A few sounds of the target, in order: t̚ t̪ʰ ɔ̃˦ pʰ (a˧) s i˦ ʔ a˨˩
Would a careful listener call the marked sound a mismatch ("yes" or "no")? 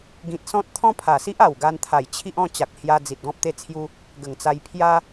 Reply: yes